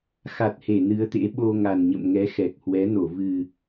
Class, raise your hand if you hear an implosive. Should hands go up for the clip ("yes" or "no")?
yes